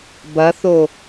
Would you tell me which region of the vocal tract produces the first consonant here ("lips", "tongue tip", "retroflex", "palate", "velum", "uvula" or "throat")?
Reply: lips